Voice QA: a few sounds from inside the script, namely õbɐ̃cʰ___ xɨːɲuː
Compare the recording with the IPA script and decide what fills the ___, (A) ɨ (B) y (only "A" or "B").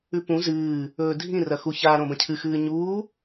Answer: A